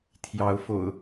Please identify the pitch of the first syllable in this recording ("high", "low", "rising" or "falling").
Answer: rising